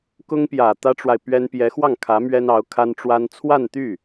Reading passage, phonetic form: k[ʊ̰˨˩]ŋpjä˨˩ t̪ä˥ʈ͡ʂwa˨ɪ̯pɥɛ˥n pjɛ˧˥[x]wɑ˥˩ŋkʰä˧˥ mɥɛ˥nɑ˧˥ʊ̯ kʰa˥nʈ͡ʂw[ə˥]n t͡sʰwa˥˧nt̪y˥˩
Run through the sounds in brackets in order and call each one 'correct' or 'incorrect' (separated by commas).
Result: incorrect, correct, incorrect